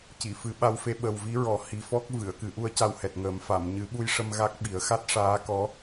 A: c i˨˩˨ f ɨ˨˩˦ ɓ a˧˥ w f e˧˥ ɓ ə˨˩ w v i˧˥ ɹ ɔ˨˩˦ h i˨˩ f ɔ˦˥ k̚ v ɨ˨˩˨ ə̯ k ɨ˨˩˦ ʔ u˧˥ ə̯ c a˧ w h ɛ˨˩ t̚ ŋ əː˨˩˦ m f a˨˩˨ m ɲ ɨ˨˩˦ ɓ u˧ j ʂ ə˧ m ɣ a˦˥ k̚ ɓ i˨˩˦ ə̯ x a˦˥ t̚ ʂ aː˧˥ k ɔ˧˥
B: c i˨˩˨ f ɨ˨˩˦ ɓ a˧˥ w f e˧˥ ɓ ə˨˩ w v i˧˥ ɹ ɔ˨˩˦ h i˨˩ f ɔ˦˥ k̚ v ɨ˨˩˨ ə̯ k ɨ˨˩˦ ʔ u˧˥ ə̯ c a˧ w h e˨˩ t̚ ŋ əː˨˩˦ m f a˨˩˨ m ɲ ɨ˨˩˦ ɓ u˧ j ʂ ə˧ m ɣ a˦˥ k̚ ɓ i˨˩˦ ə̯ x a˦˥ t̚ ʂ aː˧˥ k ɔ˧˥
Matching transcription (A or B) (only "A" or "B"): A